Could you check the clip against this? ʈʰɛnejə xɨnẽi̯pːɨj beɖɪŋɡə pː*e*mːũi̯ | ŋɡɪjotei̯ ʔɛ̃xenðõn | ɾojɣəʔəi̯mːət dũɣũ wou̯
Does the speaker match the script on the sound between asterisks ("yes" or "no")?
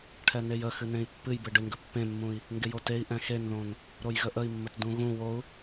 no